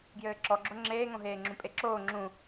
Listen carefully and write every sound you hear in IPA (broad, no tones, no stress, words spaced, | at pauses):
ɡjɘːǁɔɡ͡ǁo ŋ͡ǁeːŋõɦeːŋ͡ǁũ pʼeǁoː ŋ͡ǁũ